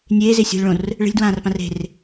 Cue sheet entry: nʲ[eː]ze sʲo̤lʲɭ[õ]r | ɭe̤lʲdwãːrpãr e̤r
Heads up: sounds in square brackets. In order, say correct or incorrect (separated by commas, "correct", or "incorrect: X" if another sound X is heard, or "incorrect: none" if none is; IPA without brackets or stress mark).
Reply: correct, correct